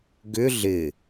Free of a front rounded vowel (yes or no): no